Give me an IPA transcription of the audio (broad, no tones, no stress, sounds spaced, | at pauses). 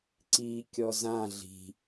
ǀ i kʲ ɔ z ã ɮ i̤